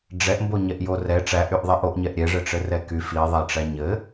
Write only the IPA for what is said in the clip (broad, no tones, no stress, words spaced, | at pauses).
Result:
ɖ͡ʐɛʔmbo ɲɛʔjorɛ ʈ͡ʂæʔyʔ ðˤɛʔoʔɲɛʔ ɾʲɛʐɘʈ͡ʂɘ rɛky fiðˤæʈ͡ʂæ ɲɘ